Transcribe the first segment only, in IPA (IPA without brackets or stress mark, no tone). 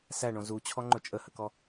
s